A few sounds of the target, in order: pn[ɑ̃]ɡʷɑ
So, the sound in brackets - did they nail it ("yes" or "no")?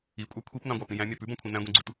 yes